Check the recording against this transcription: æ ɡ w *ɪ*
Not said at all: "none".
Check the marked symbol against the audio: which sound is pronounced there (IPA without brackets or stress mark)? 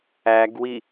i